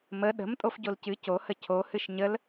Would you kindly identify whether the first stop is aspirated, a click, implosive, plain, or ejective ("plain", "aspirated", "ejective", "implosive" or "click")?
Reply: implosive